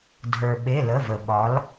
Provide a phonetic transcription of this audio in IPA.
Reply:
dʱ ə˞˩ ɓ e˩˧˩ l ə˩˧˩ v ə˩ ɓ ɒ˩˧ l

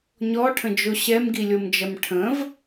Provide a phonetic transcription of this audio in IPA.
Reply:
ɲ ɔ ʈʰ ə̃ d͡ʒ o ɕ ɛ m ɡ i lʲ o m d͡ʒ ɐ m ʈʰ ə̃ v

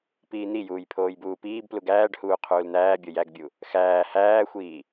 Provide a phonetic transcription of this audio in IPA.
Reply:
p iː n̪ i j uː j pʰ oː j b uː p iː b p l u ɡ æː ɖ h uː qʰ uː l n̪ æː bʲ o j æ ɡ bʲ u | x æː h æː xʷ iː

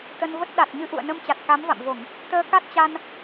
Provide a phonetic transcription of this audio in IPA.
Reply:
t̪ ə˧ n v ə˦˥ t̚ ɗ a˨˩ t̚ ɲ ɨ˧ ʔ ṵ˧˨ ə̯ n ə˧ m t͡ɕ a˨˩ t̚ k a˨˦ m v a̰˧˨ m v o˧˩˨ ŋ | t̪ əː˧ k a˦˥ t̚ t͡ɕ a˧ n

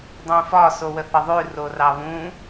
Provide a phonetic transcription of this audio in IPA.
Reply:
dˤ ũ f ɒ s o w ə θ ə ðˤ ʉ r o r ɑ β ũ

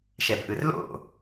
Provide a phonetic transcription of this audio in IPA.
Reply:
ʃ ɛ b ʔ ɯ r l o̰

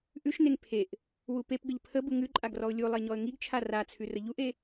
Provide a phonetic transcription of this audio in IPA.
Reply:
ʔ ʉ ʃ n e ŋ pʰ e ʔ | w u p e p ɡ ə ʎ pʰ ə b u ŋ ʉ ǃʼ a ɡ r ɔ ʊ̯ lʲ u lˠ e ɲ ɔ ə̯ ŋ i ɡ t͡ʃʰ a r a t͡sʰ ʉ r ə ʎ u ʔ e

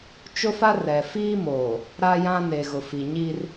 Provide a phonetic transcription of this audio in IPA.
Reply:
t͡ʃ ʊ˦ f a˦ r ɛ˨ f iː˦ m oː˨ | ɾ a˦ j ã˦ n e˨ ɣ ʊ˨ f i˨ ɲ iː˦ r

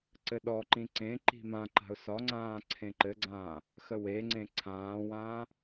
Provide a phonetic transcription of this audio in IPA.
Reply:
ǀ ɘ ɗ ɔ ǃ ĩ ǀ ẽ ǃ i̤ m ã ǃ a̤ ʊ̯ s ɒ ŋ͡ǀ ãː ǀʰ ẽ ǃ ɘ ɡ͡ǀ ãː | x ə w e ŋ͡ǀ ẽ ǀʰ ãː w ãː

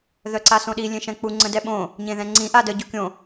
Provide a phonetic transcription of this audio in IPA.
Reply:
ð œ ǀ a s õ ɗ i lʲ ẽ ʃ ɛ̃ k͡p u ŋ͡ǀ ə̃ d ɛ ɓ õ | ɲ ẽ ð ɛ̃ ŋ͡ǀ ĩ ʔ a d ə ɟ o kʲ õ

